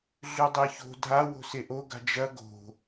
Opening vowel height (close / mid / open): close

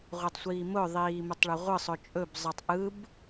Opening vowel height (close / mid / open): close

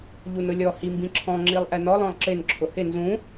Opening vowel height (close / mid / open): close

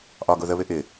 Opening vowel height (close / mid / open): open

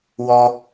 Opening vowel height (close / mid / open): mid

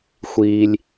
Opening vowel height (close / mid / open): close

